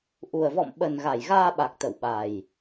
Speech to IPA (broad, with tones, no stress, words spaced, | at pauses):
ʔu˨˩ə̯vɔ̰˧˨m ɓə˨˩n ɣa˧˩jɣaː˧ɓa˨˩k̚ t̪ə̰˧˨wɓa˨˩j